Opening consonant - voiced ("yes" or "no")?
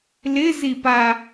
yes